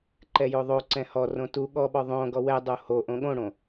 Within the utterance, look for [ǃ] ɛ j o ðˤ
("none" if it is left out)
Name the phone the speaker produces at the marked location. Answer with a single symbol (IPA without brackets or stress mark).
ǃ